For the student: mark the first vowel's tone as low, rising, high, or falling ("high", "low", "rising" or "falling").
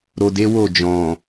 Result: low